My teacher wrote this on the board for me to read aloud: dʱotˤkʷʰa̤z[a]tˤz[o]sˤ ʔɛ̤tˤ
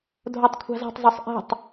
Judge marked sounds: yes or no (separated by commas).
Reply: no, yes